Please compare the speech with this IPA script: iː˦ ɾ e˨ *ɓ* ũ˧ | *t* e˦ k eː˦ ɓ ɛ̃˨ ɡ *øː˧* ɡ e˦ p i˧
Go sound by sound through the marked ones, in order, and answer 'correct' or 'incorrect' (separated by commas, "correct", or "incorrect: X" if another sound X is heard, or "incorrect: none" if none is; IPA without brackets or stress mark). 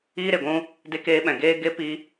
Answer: incorrect: ɡʷ, incorrect: d, incorrect: eː˧